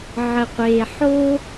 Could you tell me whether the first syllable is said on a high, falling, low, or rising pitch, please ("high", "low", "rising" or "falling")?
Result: low